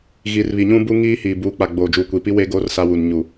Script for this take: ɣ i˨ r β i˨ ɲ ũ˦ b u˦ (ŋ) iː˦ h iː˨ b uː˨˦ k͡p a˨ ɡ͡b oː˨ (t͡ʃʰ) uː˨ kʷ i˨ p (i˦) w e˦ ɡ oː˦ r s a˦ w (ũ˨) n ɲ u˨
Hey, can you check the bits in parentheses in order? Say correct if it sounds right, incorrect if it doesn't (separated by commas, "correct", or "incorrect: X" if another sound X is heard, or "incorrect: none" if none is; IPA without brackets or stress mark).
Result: correct, incorrect: d͡ʒ, correct, incorrect: u˨